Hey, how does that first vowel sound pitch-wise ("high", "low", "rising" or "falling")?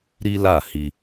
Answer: high